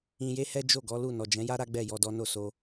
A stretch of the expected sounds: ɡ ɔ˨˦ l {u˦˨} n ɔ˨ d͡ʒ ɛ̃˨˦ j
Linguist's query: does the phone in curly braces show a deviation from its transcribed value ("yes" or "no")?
no